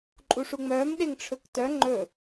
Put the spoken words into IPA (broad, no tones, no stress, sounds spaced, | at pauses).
ǃʼ u ʂ u ŋ͡m œː m ɗ e ŋ ʈ͡ʂʰ ɵ k t œ ŋ͡ǃ ɵ